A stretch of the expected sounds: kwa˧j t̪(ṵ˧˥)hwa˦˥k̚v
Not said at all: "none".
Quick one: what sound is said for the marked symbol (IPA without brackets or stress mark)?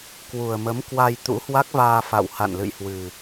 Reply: ṵ˧˥